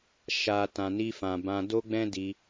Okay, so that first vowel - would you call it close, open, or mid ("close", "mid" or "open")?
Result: open